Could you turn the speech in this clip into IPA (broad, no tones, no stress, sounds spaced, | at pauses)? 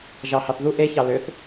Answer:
ʒ ɑ h ɑ θ ð u ʔ e ç ɑ l ø θ